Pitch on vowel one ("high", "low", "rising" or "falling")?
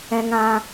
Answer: high